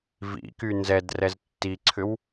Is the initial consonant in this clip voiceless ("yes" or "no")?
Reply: no